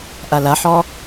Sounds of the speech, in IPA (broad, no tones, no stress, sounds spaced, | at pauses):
ʔ ɐ l ɐ ħ ɔ